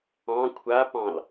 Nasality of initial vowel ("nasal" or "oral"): nasal